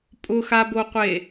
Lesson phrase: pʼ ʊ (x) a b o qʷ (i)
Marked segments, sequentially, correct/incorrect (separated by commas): correct, incorrect